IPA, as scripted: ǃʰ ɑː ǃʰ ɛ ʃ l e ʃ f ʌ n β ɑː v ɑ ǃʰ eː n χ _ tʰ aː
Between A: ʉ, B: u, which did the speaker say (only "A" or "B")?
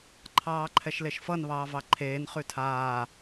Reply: A